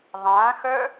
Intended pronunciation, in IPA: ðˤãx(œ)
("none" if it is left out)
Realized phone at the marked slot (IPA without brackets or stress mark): œ